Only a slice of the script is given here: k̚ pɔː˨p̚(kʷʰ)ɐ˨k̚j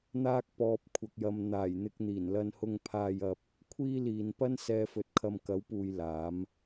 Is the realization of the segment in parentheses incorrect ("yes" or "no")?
no